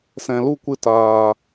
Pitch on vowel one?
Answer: low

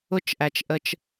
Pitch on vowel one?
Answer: high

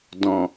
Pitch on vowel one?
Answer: low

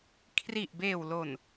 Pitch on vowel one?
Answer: low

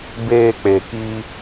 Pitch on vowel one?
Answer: low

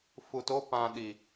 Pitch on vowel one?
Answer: low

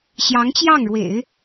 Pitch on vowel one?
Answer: rising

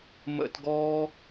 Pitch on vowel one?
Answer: high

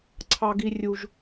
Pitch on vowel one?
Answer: high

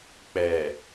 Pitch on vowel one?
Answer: low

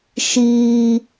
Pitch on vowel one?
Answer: high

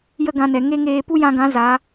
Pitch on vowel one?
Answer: high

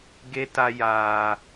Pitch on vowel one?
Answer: high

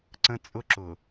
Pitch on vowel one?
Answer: high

